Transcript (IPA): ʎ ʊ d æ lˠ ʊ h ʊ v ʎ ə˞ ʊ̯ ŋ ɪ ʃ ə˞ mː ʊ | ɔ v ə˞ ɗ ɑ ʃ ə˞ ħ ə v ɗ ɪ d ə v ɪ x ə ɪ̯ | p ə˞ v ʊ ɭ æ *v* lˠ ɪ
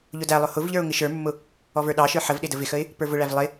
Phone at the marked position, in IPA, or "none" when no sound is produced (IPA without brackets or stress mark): v